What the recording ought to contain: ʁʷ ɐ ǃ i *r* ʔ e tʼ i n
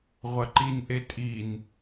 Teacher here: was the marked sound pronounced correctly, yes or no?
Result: no